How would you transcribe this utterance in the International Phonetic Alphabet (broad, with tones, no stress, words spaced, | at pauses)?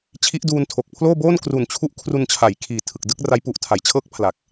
t͡ɕʰi˦˥ʔduː˧n tʰo˨˩k̚pʰloː˥˩ boː˥˩nkru˨˩nt͡ɕʰu˦˥ʔ kʰru˧nt͡ɕʰa˩˦jkʰiː˨˩ tʰɯ˨˩k̚dɯ˥˩k̚ra˦˥j pu˨˩ʔtʰa˩˦jt͡ɕʰɤː˦˥k̚ pʰla˨˩k̚